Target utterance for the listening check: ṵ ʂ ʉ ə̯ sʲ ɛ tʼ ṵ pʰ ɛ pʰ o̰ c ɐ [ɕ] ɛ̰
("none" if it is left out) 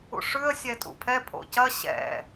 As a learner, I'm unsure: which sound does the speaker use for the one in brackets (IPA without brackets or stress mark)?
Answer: ɕ